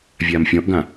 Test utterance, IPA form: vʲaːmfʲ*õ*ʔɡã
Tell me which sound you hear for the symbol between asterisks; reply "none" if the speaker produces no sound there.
ɔ̃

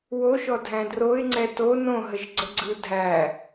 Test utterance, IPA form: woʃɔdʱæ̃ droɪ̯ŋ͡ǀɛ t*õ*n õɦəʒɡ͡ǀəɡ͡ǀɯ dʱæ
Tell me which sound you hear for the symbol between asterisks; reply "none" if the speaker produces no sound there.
o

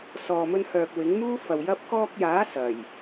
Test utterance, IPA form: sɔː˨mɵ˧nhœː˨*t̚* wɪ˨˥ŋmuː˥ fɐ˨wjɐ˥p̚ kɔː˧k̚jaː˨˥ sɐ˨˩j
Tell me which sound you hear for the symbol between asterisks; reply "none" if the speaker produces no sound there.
k̚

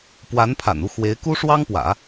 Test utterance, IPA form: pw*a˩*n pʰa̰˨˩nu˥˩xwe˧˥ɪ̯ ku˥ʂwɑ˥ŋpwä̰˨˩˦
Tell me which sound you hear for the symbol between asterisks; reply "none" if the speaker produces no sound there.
a˧˥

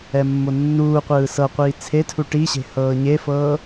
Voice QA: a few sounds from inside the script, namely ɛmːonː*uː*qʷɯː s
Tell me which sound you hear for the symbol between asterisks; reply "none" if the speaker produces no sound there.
uː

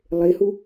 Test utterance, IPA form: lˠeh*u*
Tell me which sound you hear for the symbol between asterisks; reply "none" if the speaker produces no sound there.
u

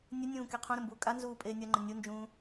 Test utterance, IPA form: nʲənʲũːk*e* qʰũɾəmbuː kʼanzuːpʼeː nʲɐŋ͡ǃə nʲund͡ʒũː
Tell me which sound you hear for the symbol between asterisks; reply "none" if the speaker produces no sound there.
e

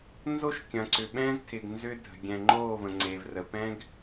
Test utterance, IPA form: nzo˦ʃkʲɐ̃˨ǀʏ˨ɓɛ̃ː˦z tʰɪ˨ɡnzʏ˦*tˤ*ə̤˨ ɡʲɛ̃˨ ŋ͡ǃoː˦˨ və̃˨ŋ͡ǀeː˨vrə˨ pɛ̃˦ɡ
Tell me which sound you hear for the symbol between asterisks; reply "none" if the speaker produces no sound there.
dʱ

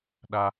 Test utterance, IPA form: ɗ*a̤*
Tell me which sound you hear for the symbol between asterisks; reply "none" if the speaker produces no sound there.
a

